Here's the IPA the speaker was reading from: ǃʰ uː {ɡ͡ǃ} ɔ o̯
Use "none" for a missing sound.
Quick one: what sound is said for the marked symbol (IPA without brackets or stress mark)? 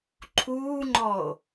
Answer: ŋ͡ǃ